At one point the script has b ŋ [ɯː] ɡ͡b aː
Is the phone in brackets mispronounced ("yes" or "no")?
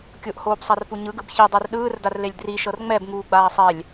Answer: yes